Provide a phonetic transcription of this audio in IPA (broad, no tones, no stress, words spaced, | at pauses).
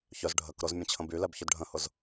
çœz ɖʱək ɾʊz mʲə̃t͡ɕʰə̃bylɛb çœdɖʱə̃hʊz